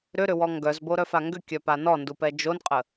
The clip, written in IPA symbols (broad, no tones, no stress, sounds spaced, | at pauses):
ɾ ʏ ɾ ʏ w ɔ ŋ ɡ œ z b o ɾ œ f a ŋ ɡ ʏ kʲ œ p a n ɔ n d u p ɛ d͡ʒ o n qʼ ə